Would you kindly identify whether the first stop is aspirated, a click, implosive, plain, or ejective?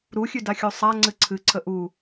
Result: plain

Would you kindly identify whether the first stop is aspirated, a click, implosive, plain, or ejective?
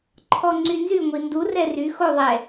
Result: click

